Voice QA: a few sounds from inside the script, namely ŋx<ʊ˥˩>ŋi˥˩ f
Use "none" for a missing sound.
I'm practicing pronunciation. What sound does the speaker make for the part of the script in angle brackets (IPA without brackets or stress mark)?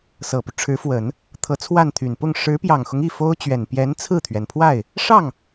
ʊ˦